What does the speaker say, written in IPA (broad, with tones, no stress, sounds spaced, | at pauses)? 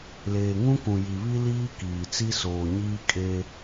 l eː˨ ŋ ũ˦ k ũ˨ j i˨ β i˦ l iː˦ k iː˨ t͡s i˦ s oː˨ ɲ iː˦ kʼ e˦